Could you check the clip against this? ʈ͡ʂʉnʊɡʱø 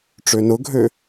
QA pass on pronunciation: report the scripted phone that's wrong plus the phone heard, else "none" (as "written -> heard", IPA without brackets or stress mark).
ʉ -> ø